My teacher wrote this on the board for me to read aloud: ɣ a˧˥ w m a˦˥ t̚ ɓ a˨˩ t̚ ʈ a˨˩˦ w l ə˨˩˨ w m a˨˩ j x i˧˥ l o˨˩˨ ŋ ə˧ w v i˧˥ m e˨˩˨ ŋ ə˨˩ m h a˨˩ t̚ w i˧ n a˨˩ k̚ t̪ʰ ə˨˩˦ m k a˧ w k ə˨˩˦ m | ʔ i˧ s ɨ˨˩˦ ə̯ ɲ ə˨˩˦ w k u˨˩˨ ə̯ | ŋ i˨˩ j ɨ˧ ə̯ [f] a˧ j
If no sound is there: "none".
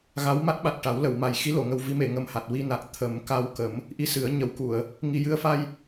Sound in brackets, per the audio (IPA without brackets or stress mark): f